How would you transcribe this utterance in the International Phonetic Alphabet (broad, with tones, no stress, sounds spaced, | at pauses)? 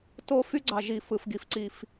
t o˦ f y˦ ɡ͡ǀ ɑ˨ ʒ i˨ f ɯ˨ f ɡ i˨ f ǀ i˦ f